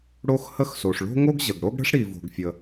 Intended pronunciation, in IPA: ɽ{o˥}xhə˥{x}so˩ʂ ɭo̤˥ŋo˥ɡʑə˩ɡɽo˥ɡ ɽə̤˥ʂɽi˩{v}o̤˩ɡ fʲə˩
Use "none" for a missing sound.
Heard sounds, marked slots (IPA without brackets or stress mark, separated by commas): o˥, x, v